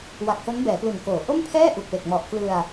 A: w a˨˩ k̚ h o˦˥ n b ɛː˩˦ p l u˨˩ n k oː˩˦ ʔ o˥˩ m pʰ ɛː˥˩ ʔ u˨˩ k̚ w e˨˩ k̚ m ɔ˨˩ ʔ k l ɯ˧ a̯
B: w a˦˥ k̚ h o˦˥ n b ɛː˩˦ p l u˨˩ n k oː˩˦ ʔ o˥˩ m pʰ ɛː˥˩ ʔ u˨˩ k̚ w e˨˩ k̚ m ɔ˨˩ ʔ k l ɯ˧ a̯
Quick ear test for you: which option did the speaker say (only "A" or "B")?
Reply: A